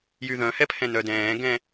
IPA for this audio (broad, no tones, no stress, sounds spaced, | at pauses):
j y ð œ̃ h ɛ pʰ ɛ̃ n œ d ɛ̃ː ɡ ɛ̃